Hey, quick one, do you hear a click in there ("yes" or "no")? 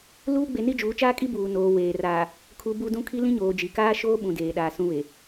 no